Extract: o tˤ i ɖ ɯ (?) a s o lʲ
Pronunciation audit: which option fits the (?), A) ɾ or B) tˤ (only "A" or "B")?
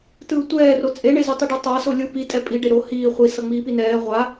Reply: B